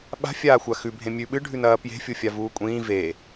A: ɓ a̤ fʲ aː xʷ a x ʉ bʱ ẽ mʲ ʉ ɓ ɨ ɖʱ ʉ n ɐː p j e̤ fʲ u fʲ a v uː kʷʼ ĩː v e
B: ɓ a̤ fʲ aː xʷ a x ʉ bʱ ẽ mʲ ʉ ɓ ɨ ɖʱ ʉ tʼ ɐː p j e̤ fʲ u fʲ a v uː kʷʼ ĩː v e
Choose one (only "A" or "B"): A